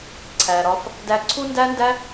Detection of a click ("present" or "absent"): present